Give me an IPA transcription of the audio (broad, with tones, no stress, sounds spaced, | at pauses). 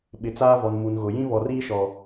ɓ ɪ˨ t͡s aː˦ v ɔ˨ n m u˨ n ɣ ʊ˨ j ĩ˦ β ɔ˨ r iː˦ ʃ ɔ˨